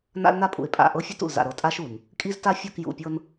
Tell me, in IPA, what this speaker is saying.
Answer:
n a̰˦ l n a˦ pʼ ṵ˨ ɪ̯ pʼ a̰˦˨ ʔ ɤ˦ fʲ ɤ˦ t ṵ˨ l z a̰˨ ɾ ɤ˨ tʼ a˦ ʃ u˨ n | kʼ i˦ z t a˦ fʲ u˦˨ k j ṵ˨ pʲ ɤ˦ n

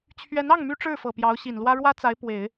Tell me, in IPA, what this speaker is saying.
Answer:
t͡ɕʰ ɥ ɛ˧˥ n ɑ˥˩ ŋ m y˥ ʈ͡ʂ ɻ̩˥˩ f ɤ˨˩ p j ɑ˧˥ ʊ̯ ɕ i˨˩ n l w ä˥ ɻ w ä˥ t͡s a˧˥ ɪ̯ p w e˨˩˦ ɪ̯

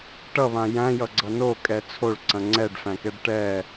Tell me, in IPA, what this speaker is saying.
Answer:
ʈ ʌ β ã j æ̃ j ʌ ɡ͡ǀ ʌ n o kʼ ɛ t͡sʰ o ɭ ǀ ɐ̃ ŋ͡ǀ ɛ ɖ f æ̃ k ɛ ɖ ʈ ɛ

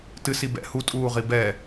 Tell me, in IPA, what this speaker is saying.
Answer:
t ɨ s i b ɛ̰ h u tʼ uː ʁ i b ɛ

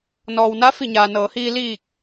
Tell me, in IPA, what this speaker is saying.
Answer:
n ɔː˩ w n a˧˥ f i˧˩ ɲ aː˩ n ɤː˩˧ h iː˧ l iː˧˩ k̚

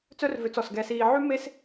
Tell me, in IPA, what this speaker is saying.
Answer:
t͡s œ˥ r v ø˧ t͡s ɔ˧˩ s ɡ ɛ˧ s iː˧ ʕ y˥ m e˥ s

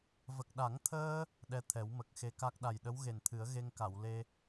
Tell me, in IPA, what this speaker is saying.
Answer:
v ə˨˩ k̚ ɗ a˨˩˦ ŋ t̪ʰ əː˧ | ɗ ɛ˧ t̪ʰ ɛ˨˩˦ w m ə˨˩ k̚ x e˧˥ k a˦˥ k̚ ɗ a˨˩ j ɗ ə˧˥ w ɣ e˨˩ n t̪ʰ ɨ˨˩˦ ə̯ ɣ e˧ ŋ k a˨˩˨ w l e˧

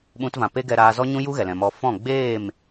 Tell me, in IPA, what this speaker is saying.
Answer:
ɓ ũ˧ t v ã˨ p e˦ ɡ ɛ˧ ɾ aː˧ z ɔ˦ ɲ ũ˦ j u˦ ɣ ɛ˨ l ɛ̃˨ m ɔ˧ f ɔ̃˦˨ ɡ͡b eː˦˨ m

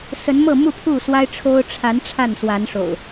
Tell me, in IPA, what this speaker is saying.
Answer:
s ə˨˦ n m ɤ˥˨ m u˥˨ pʰ u˥˨ s w a˦ ɪ̯ ʈ͡ʂʰ o˦ ʊ̯ ʈ͡ʂʰ a˨˦ n ʈ͡ʂʰ a˥˨ n s w a˨˦ n ʂ o̰˨˩ ʊ̯

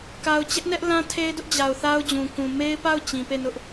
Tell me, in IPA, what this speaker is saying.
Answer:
k a˨ ʊ̯ t͡ɕ ɛ˦ ʔ n ɛ˦ ʔ l ã˦ tʰ e˦ ɪ̯ d ʊ˦ ʔ d͡ʑ a˨ ʊ̯ θ a˦ ʊ̯ d͡ʑ ũ˨ k ũ˨ m e˦ ɪ̯ p a˦˨ ʊ̯ t͡ɕ ĩ˨ p e˦˨ n ʊ˦ ʔ

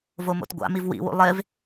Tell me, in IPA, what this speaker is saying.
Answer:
v o m o̰ t ɡʷ a̰ m i v w ḭ w ṵ lˠ e v

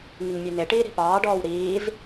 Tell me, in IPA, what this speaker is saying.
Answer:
ŋ i ŋ mʲ ʉ n e ʈ iː ɾ i̤ p ɑː ɖ ɔː w ɾ iː z

